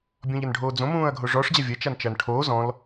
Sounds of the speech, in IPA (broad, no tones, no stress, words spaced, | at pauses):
bʲɔ̃ʎɐnɖʱoːd͡zõ mũːɐ̯ɡʱoʐɔʂ d͡ʑavʲɐ t͡ʃant͡ʃɐːnʈʰoː zɔ̃l